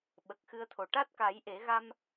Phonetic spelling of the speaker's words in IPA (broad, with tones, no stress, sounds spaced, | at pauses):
ɓ ə˨˩ k̚ x ɨ˧ ə̯ t̪ʰ o˨˩ ʈ a˦˥ t̚ k a˨˩˦ j ʔ e˨˩˦ ɣ a˧ m